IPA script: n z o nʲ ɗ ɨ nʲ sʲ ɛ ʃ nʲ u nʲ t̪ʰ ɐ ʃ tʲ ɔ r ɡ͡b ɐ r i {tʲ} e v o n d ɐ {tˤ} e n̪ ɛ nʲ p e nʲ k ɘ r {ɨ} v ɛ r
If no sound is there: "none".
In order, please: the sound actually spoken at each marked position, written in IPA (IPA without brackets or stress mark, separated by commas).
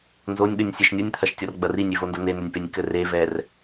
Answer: nʲ, n̪, e